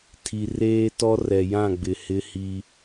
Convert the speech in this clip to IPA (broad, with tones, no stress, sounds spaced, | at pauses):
tʰ i˨ r eː˦ t ɔ˦ r ɛ˨ j ã˦˨ ɡ͡b ɪ˨ h ɪ˦ h i˦